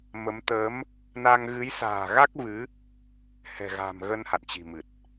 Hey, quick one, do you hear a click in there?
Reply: no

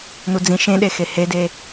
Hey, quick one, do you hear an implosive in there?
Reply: yes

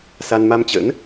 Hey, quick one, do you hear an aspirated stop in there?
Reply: no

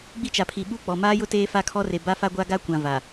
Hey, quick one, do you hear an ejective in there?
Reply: no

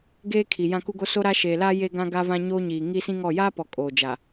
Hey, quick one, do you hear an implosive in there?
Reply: no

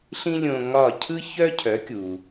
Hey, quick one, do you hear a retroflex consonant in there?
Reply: no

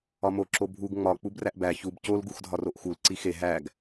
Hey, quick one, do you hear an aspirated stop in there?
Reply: no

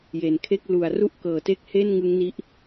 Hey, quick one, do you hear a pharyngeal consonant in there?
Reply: no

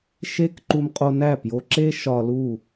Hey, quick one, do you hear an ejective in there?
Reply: yes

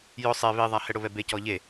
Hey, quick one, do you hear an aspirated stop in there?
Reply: no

